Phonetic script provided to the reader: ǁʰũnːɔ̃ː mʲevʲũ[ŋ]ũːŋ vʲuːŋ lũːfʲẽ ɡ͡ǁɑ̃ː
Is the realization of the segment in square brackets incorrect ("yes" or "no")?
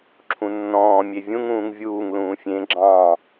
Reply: no